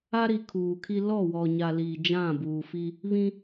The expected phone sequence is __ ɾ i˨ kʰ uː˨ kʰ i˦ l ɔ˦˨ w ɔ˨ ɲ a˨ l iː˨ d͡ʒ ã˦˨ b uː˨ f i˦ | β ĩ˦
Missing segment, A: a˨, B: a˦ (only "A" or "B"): B